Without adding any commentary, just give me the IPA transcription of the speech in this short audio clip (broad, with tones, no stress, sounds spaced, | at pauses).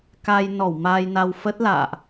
k a˧ j n ɔ˧˩ w m aː˧ j n a˧ w f ə˦˥ t̚ l a̰ː˧˨ ʔ